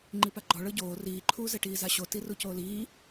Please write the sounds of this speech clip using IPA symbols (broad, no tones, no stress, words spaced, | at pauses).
ŋ͡ǃipaɡ͡ǃɔ ɭɤɟoː riːǃʰuːzɛʈiː zaɕoti rucoːliː